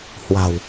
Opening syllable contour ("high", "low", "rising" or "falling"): low